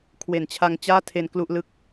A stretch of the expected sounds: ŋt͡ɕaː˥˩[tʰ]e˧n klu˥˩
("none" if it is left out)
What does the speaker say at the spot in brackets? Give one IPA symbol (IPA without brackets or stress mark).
tʰ